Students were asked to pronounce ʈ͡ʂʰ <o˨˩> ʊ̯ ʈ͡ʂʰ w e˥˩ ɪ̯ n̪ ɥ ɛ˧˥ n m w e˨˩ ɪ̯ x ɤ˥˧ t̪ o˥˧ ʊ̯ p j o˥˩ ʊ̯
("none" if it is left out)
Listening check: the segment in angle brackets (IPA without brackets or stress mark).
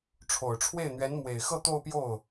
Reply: o˨˩